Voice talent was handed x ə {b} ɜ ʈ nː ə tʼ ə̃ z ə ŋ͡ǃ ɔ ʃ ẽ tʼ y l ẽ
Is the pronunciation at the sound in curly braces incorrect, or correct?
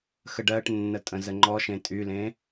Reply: incorrect